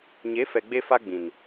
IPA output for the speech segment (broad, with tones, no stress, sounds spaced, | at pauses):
ɲ e˨˦ f ɛ˨ ɡ͡b e˧ f a˧ ɡ͡b ĩ˨ n